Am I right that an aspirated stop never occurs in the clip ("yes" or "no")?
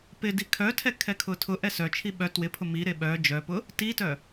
no